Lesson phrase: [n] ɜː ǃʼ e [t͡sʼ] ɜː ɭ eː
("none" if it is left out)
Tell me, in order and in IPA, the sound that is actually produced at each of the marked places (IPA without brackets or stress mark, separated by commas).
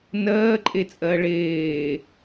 n, t͡sʼ